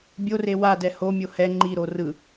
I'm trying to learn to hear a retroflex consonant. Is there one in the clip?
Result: no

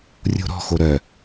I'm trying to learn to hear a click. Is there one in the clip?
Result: no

